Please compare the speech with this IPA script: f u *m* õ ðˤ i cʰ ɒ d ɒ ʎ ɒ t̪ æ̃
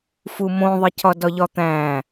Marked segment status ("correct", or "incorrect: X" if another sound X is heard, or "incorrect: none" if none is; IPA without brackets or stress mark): correct